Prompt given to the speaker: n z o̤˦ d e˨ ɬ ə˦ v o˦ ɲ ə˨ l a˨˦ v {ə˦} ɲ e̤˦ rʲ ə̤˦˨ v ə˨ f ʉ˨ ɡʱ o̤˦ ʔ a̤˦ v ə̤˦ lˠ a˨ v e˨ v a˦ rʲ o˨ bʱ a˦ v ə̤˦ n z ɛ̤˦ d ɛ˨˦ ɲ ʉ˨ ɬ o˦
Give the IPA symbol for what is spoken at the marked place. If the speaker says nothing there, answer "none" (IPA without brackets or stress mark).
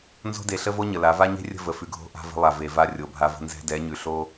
a˦